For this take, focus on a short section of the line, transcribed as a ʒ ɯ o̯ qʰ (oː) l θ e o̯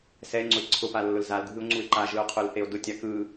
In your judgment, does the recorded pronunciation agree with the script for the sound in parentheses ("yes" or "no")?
no